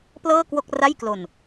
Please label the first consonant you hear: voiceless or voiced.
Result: voiceless